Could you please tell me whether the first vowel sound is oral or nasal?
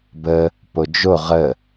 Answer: oral